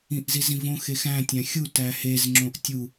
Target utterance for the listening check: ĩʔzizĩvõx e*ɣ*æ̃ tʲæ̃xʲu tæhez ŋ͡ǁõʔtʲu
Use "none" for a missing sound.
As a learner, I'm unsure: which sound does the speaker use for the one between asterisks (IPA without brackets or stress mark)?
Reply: x